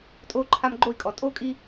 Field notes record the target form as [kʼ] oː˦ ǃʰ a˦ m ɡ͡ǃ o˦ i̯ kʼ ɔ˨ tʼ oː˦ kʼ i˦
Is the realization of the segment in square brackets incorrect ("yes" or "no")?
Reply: yes